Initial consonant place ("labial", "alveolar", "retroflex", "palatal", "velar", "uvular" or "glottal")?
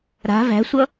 alveolar